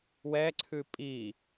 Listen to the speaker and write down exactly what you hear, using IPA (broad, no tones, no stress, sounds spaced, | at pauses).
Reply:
w ɛ ǀʰ ʉ pʼ i